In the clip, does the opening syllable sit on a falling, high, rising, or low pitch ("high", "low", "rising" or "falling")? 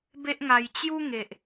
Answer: high